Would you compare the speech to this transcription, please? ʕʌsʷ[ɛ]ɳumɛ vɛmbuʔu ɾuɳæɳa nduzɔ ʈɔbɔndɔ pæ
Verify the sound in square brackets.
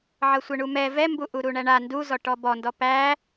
correct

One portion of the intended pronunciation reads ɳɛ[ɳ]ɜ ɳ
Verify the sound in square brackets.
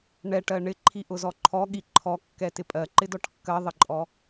incorrect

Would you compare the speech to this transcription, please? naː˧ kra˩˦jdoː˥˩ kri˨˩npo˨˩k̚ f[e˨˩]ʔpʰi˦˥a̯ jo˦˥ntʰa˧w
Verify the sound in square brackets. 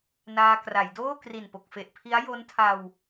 correct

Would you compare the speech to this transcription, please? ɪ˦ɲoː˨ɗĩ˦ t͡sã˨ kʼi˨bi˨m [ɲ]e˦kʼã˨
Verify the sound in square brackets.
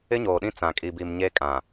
correct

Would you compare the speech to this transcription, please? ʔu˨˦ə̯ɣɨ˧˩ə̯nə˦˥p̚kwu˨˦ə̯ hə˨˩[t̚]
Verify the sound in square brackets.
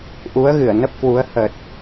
correct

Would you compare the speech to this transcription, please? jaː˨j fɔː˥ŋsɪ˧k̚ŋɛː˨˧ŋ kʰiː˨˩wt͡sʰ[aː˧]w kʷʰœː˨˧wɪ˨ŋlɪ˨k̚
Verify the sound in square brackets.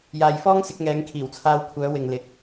correct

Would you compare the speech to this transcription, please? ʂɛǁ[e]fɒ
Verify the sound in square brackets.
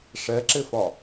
correct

